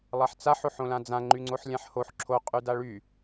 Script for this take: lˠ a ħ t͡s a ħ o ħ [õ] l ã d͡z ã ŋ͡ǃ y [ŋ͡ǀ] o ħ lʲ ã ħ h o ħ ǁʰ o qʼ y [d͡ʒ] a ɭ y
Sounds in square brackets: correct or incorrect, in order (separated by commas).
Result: correct, correct, incorrect